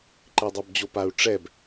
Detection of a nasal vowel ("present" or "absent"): absent